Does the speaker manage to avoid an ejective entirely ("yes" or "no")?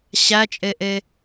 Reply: no